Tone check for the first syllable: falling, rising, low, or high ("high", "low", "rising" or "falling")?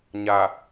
low